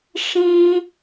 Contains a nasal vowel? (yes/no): yes